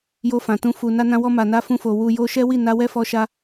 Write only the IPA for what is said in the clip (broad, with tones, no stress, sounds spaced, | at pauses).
j o˧ f ã˨ t ũ˧ f u˨ n a˧ n ã˧ w ɔ˧ m a˨ n a˧ f ũ˧ f o˨ w u˧ j o˧ ʃ ɛ˦ w i˦˨ n a˧ w ɛ˦ f ɔ˧ ʃ a˦